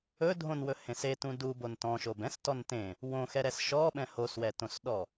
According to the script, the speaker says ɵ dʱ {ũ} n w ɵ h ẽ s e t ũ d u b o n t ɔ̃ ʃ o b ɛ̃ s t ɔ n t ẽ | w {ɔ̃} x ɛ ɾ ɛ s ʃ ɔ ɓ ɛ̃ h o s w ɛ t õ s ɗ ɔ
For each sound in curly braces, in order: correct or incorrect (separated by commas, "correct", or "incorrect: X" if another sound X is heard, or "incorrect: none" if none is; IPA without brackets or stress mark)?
incorrect: õ, incorrect: õ